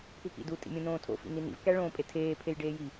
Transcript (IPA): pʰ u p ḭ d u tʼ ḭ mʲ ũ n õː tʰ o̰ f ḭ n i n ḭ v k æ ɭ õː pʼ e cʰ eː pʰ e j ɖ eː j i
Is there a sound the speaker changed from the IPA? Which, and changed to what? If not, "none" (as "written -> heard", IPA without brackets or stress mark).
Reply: cʰ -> tʰ